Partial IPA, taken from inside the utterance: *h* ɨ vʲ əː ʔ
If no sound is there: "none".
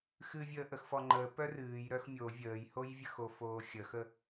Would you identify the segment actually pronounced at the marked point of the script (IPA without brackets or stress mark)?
x